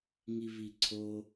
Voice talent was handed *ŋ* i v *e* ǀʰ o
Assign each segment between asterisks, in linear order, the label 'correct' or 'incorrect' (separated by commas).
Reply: correct, incorrect